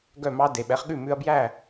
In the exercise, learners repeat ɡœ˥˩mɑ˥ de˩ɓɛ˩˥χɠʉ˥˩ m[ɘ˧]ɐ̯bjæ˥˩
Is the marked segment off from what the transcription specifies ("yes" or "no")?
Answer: yes